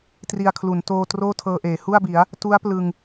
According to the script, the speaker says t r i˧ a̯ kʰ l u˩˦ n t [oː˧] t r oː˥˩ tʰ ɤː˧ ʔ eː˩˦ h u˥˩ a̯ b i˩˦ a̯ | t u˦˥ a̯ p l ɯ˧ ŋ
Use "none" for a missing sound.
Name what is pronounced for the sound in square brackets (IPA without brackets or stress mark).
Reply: oː˧